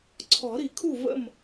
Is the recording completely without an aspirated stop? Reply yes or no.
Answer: no